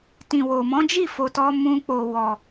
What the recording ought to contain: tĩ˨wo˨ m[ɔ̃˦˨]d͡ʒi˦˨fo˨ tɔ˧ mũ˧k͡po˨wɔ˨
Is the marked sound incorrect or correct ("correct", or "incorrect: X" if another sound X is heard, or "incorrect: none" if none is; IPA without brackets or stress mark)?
incorrect: ɔ̃˨˦